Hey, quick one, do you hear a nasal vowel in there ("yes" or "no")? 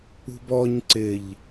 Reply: no